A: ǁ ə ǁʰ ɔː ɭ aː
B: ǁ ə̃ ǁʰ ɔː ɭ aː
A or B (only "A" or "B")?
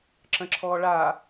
B